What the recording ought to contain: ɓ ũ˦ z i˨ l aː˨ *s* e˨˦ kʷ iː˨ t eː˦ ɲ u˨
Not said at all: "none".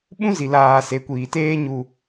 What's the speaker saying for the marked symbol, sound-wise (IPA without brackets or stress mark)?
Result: s